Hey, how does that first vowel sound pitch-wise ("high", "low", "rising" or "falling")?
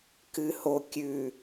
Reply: low